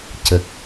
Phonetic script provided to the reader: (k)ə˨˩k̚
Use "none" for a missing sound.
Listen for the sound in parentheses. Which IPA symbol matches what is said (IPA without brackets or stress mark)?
c